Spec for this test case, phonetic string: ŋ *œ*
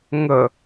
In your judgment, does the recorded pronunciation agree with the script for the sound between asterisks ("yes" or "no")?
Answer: no